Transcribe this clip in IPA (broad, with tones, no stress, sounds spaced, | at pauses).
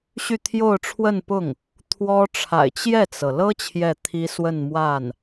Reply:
ɕ y˥˧ t̪ʰ j o˥˧ ʊ̯ ʈ͡ʂʰ w ə˥˧ n p ʊ˥˩ ŋ | t̪ʰ w ɔ˥ ʈ͡ʂʰ a̰˨˩ ɪ̯ t͡ɕ j ɛ˥˩ t͡s ɤ˩ l ɤ˥ t͡ɕʰ j ɛ˥˩ t̪ʰ i˥ s w ə˥˧ n m w a˥˩ n